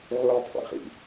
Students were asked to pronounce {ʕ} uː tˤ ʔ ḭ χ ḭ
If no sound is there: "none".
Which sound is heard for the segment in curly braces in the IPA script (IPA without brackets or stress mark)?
ʕ